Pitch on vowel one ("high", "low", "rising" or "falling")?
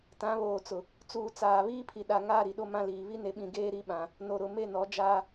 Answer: rising